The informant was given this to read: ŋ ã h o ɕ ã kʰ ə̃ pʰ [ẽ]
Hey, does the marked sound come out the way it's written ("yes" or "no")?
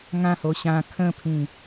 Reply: no